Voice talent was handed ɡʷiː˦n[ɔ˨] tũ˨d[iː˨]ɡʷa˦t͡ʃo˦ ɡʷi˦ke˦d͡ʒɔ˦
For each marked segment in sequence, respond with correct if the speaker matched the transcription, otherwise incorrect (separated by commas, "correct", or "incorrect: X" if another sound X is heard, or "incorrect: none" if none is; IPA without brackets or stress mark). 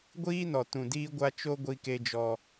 correct, incorrect: iː˦